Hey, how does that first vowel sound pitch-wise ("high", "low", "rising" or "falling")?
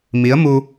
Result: rising